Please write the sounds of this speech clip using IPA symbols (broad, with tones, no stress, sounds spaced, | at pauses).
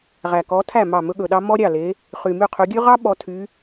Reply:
ʁ æ˨˩ k ɔ˨˦ tʰ æ˥˩ m ɑ˥˩ m ɵ˥ ɠ ɵ˨˩ ɗ ɑ˥ m ɔ˥ ɾʲ ɑ˥˩ l e˨˦ | χ y˨˩ m y˥˩ qʰ ʉ˨˦ ɡʲ ʉ˥ ʁ ɑ˥ ɓ ɔ˨˦ tʰ y˨˦